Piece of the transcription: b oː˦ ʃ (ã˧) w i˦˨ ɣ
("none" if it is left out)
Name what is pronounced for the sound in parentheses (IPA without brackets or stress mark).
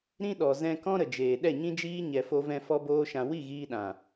ã˧